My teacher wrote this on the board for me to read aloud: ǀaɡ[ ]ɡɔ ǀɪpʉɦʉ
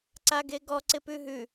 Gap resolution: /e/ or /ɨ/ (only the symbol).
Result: e